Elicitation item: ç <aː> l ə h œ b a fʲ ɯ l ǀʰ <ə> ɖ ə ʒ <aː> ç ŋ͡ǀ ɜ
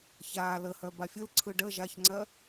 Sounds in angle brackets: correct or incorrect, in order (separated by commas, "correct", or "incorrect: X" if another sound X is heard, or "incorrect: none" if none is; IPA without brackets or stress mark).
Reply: correct, incorrect: ɯ, incorrect: a